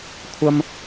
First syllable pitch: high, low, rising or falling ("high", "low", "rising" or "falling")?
high